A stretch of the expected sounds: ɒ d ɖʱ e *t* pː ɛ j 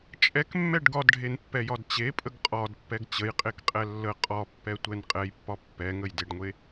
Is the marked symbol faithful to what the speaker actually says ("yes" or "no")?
no